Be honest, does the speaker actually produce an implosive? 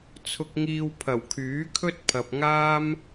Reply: no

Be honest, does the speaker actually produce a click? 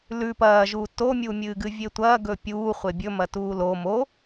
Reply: no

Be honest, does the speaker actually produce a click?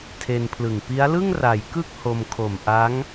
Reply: no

